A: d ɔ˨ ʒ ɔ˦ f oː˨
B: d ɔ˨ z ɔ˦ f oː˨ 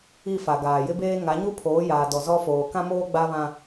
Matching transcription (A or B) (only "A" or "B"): B